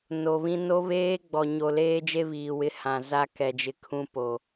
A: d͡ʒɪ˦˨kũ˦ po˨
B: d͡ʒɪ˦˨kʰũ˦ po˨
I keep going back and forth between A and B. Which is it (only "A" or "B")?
B